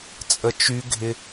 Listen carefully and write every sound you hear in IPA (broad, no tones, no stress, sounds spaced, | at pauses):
t͡sʼ ə t͡ʃ y ɡʱ ɪ